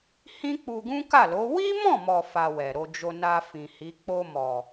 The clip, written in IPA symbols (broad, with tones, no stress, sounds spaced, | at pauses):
h ĩ˦ k͡p u˧ ɡ ũ˦ k a˦˨ l o˨˦ w i˦ m ɔ̃˦˨ m ɔ˨ f a˧ w ɛ˨ ɾ o˧ d͡ʒ o˧ n a˧ f ĩ˨ h i˨˦ k͡p o˧ m ɔ˨